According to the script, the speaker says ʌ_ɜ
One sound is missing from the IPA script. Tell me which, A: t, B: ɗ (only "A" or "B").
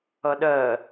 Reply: B